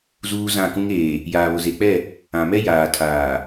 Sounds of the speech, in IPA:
z uː˦ z ã˦˨ k ũ˦ ŋ eː˨ | j aː˨ β ʊ˨ z e˨ k͡p ɛ˦˨ | ã˨ m ɛ˦ j aː˨ tʰ aː˨

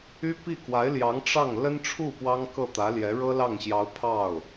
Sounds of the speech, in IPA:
y˥ p i˥˩ k w a˧˥ ɪ̯ l j ɑ˧˥ ŋ ʈ͡ʂ ɑ˥˩ ŋ l ə˥ n ʈ͡ʂʰ u˥˩ p w ɑ˥ ŋ k ɤ˥˩ t̪ ä˧˥ l j ɛ˧˥ ɻ ɤ˥ l ɑ˥˩ ŋ ɕ j ɑ˧˥ ʊ̯ pʰ ɑ˥˩ ʊ̯

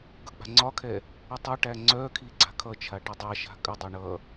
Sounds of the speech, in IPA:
ɡ ʌ k͡p a̤ ŋ͡ǀ ɒ kʰ ɛ | ə tˤ ʌ ʈ æ ŋ͡ǀ œ kʰ i ɡ͡ǀ a̤ kʰ ʌ t͡ʃʰ a ʈ ə dˤ a ʃ a̤ kʼ ə dˤ ɛ ɳ ʌ

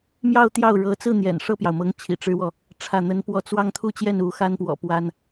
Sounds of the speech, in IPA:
m j ɑ˥˧ ʊ̯ t̪ j ɑ˥˩ ʊ̯ ɻ ɤ˧˥ t͡s ɹ̩˥˩ n̪ j ɛ̰˨˩ n ʂ ɤ˥˩ p j ɑ˩ ʊ̯ m ɤ˧˥ ŋ t͡ɕʰ ḭ˨˩ ʈ͡ʂ ɻ̩˥ w ɔ˨ | ʈ͡ʂʰ ä˥˩ n̪ ə˥ n p w ɔ˥˧ t͡s w ɑ˥˧ ŋ t̪ʰ u˥˧ t͡ɕ j ɛ˥˩ n u˧˥ x a˥ n p w ɔ̰˨˩ p w a˥ n

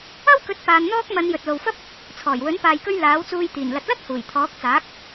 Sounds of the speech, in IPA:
ɐ˥ w k ɵ˨˥ t̚ p aː˨˧ n n̪ ɔː˥ k̚ m ɐ˨˧ n j ɵ˨ t̚ l o˨ w f ɐ˥ p̚ | t͡sʰ ɔː˨˩ j w ɵ˨˥ n p aː˧ j k ɵ˥ ɥ l aː˨˥ w t͡s uː˧ j t̪ iː˨˩ n l ɐ˨ t̚ l ɐ˥ t̚ h uː˨˩ j t̪ʰ ɔː˨˥ k̚ t͡s aː˨˥ k̚

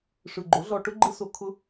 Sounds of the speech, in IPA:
ʂ ɯ˨ ɡ͡ǃ o˨˦ ɮ ɔ˧ ʈ ʊ˦ ɡ͡ǃ ɯ˦ s o˧ kʰ ʊ˦

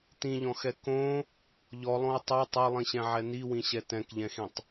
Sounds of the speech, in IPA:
t ĩ ʎ ɔ̃ x ɛ k õ | ʎ ɔ lˠ õ u̯ tˤ ɛ tˤ o lˠ ĩ ɕ ɛ̃ ʕ ɛ n i w ĩ ɕ ɛ t ɛ̃ k ʎ ɛ̃ x ĩ tˤ

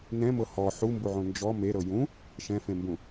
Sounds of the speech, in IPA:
n ɛ̃ m ɤ h ɔ ħ u m b u ʕ õ n d͡ʒ ɔ m e ɾ ɤ j ũ | ʃ ɛ̃ f ẽ m b ũ

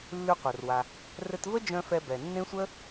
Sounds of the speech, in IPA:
lː ʉ˧ qʷ œ˩ r w a˩ | r ɘ˧ t v ə˥ d͡ʒ œ̃˧ f ɛ˧ b ɛ˩ nː ẽ˥ sʷ ə˥

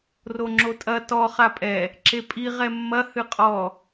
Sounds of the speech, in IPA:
r o ŋ͡ǁ o tʼ ɐ t ɔ χ a pʼ ɛ | ǁ e pʼ i ʁ ɛ mː ɐ h ɨ qʼ ɔ

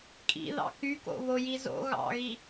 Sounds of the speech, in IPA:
kʼ ḭ ð ɑ̰ k y k o̰ β o j i z o̰ ɣ ɑ̰ ɣ i

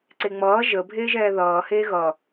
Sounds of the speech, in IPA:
ǀ e ŋ͡m ʌː ʒ ə bʱ eː ʒ ɛː ð ʌː h eː ɣ ʌ

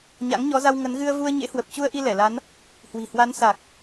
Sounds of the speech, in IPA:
ɲ a̰˧˥ ŋ ɲ ɔ˨˦ z a˧ w ŋ ə˨˦ n ɣ ɨ˧ ə̯ v u˧ ə̯ ɲ ḛ˧˥ h w ə˨˩ p̚ t͡ɕ u˧ ə̯ ʔ i˧ l ɛ˧˩ l a˨˦ n | h w i̤˨˩ h w a˨˦ n s a˨˩ k̚

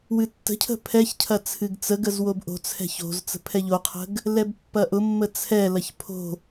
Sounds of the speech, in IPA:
w ɨ tː ə̤ cʰ ə̤ pʰ ɛ ç cʰ ɐ t͡sʰ ɨ ɡ t͡s ə ɡ ə z w o b ʔ o̤ t͡sʰ ɛ̤ ç o̤ z t͡s ə̤ pʰ ɛ ʎ o qʰ ə̤ ɡ | l ɛ b pː ɐ ʔ ʊ mː ə t͡sʰ ɛ l ɐ ç pʰ o̤

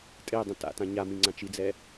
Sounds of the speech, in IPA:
tʼ e dˤ ə̃ t a̰ t ã ɲ a m ĩ ŋ͡ǀ ã t͡ʃ i d͡z ɛ

